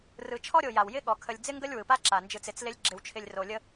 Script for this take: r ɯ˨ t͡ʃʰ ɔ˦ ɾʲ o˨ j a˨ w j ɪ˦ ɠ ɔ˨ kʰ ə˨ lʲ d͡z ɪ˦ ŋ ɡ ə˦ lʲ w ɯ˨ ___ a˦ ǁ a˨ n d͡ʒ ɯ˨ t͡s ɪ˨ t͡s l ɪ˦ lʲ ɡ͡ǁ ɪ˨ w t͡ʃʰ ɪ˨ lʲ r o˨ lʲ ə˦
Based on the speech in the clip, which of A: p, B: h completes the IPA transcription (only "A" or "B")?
A